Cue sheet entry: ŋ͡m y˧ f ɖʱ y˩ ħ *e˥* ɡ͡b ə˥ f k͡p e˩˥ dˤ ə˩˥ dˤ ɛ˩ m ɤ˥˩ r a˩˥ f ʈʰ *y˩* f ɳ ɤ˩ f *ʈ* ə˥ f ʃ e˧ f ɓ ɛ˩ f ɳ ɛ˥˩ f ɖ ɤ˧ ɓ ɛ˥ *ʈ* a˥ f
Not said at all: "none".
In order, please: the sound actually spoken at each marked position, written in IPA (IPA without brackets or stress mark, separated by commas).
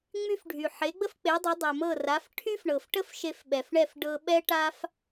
e˩˥, y˥, ʈ, ʈ